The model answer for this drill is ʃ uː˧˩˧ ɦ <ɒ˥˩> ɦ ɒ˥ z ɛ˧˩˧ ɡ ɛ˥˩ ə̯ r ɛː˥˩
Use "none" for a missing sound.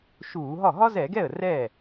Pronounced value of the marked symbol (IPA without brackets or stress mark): ɒ˥˩